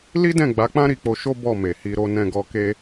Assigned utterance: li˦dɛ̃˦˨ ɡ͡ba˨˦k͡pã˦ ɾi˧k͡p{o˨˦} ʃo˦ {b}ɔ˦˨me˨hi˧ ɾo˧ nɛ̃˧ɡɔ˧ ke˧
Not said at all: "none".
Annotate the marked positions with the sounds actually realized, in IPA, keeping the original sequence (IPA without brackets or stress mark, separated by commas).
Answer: o˧, b